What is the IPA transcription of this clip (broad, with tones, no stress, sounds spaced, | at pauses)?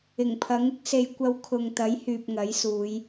ɪ˨˩ ŋ pʰ ɐ˨˥ ŋ ɪ˥ k̚ s e˧ j kʷ ɐ˧ w kʰ ʊ˨ ŋ t̪ ɐ˨˥ j h yː˨ p̚ ŋ ɐ˨˥ j s uː˨˧ j